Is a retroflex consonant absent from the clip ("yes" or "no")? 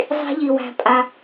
yes